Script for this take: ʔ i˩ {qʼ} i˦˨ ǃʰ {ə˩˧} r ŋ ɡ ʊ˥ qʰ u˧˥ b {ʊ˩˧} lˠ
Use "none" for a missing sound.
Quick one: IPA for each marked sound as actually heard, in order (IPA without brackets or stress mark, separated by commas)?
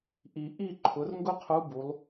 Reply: ʔ, ʊ˩˧, u˩˧